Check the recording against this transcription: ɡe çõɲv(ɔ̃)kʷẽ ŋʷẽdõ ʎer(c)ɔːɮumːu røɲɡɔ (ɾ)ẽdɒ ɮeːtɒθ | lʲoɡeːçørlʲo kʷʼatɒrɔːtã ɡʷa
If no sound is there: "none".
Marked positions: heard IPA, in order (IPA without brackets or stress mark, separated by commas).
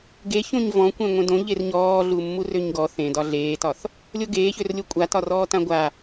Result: ɔ̃, ɲ, θ